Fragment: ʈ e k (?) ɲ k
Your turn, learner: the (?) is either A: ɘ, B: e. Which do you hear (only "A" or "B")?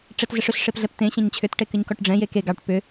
A